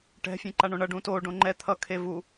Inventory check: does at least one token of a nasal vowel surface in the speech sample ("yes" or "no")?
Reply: yes